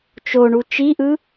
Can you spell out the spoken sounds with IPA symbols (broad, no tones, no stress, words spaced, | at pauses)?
t͡ʃoɳu t͡ʃiʔɯ